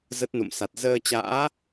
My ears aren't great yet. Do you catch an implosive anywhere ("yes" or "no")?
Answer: no